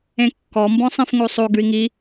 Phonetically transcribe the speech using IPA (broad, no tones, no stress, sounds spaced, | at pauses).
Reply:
ẽ kː ɔ m b ɔ̃ sˤ ĩ f ŋ o sˤ o ɡ ʉ i̯ ŋ i